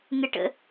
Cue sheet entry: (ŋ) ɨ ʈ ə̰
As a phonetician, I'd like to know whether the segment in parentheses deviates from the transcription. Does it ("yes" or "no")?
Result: no